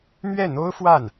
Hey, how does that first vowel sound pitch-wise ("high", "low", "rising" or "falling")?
falling